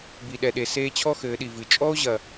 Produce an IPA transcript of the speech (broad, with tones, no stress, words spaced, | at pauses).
bi˨ɗɛ˨ɗe˨ seː˧ t͡ɕʰɔ˦ xɘː˨˦ɗi˨vɨ˨ t͡ʃʼɔ˦o̯ʑɐ˨